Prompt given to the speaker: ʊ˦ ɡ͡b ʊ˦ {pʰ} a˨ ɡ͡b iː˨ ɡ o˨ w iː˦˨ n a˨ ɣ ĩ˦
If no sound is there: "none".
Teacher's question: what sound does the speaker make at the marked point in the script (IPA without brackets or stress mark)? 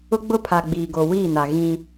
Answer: pʰ